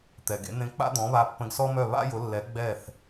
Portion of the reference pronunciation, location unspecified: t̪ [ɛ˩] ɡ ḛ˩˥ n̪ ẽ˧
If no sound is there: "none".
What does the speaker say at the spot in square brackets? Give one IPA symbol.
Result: ɛ˩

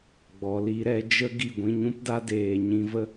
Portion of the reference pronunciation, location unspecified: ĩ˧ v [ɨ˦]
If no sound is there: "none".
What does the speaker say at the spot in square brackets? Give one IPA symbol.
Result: ə˦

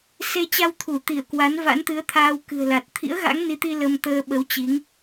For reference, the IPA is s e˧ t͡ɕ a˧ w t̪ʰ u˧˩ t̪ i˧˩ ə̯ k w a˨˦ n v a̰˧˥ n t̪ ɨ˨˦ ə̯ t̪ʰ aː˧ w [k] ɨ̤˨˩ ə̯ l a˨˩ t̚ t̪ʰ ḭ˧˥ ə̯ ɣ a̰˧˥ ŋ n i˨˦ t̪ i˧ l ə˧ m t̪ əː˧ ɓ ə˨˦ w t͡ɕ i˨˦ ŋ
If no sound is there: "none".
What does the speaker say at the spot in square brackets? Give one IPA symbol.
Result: k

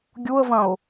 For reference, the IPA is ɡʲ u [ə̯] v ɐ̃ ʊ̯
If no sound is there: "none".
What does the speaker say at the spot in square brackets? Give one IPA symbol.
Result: ə̯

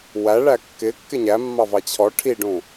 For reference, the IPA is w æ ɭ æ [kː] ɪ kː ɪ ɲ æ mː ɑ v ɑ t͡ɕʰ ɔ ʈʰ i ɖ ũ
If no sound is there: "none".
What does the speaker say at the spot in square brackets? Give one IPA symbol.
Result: kː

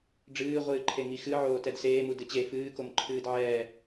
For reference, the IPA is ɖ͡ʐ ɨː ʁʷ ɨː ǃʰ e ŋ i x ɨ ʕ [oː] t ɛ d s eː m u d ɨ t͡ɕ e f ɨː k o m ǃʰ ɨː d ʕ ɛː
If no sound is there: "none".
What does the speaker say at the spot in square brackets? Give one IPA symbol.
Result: oː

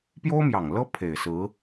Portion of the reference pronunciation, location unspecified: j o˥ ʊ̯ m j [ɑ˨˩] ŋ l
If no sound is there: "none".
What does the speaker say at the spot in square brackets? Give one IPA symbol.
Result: ɑ˨˩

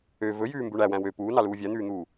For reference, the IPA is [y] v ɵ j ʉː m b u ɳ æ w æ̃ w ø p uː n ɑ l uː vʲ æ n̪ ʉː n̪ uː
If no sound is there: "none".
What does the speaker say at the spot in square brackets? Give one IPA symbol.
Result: ø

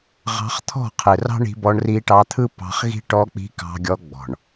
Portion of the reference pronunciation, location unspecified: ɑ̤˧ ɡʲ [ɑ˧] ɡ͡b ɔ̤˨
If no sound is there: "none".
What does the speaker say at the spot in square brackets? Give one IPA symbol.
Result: ɔ˧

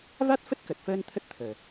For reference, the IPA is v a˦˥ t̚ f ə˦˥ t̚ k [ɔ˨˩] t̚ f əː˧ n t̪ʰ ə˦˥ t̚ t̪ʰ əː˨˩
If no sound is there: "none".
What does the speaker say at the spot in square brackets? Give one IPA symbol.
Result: ə˨˩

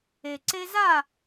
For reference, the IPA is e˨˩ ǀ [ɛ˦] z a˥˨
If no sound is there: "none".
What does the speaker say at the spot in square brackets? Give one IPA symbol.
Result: e˦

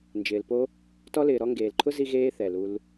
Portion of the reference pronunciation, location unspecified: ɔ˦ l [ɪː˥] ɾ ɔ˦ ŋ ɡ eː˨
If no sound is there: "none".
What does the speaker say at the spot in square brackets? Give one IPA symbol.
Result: ɪː˨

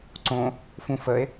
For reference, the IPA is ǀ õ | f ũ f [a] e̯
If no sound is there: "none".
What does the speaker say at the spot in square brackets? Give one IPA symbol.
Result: ə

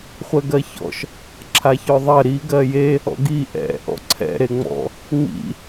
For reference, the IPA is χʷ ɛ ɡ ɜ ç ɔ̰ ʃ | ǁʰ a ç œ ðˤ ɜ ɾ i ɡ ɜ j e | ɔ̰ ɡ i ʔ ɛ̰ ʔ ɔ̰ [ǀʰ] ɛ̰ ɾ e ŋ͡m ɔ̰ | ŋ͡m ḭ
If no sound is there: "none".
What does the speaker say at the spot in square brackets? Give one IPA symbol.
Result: ǀʰ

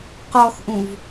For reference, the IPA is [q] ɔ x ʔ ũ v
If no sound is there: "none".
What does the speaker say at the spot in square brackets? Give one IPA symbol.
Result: q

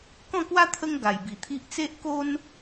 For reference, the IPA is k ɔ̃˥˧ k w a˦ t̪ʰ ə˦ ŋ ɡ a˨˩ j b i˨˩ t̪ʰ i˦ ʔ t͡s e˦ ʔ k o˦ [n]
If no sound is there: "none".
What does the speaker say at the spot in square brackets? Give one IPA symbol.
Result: n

